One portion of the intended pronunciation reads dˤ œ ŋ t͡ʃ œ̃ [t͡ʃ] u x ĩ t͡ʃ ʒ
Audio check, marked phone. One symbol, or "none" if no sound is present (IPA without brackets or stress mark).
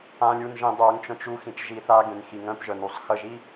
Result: t͡ʃ